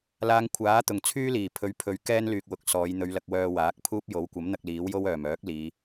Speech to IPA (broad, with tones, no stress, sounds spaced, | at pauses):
l aː˧ ŋ kʷʰ aː˨˥ t̪ ʊ˨˩ ŋ t͡sʰ yː˥ l iː˨˩ pʰ ɵ˨˧ ɥ pʰ ɵ˨˧ ɥ k ɛː˥ n l yː˨ k̚ w ʊ˨ k̚ s ɔː˨˧ j n̪ ɵ˨˧ ɥ l ɐ˧ k̚ w œː˧ w aː˨˥ k̚ pʰ uː˥ p̚ j o˨˥ w kʷ ɐ˨˥ m n̪ ɐ˧ k̚ l iː˨˥ w j o˥ w œː˨˩ m œː˨˥ k̚ l iː˨˧